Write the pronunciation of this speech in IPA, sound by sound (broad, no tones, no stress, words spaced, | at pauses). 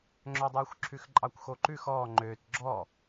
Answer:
ŋ͡ǁœdˤʉːxʷǁʰʉxǃʼɑkʷ xoǃʉx ɔː ŋ͡ǃøːt ɡ͡ǁɔ